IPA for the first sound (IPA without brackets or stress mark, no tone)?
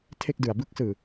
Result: tʰ